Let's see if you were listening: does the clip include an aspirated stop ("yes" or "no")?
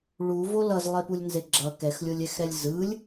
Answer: no